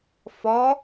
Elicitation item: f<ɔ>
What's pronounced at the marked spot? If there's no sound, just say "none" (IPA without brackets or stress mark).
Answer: ɔ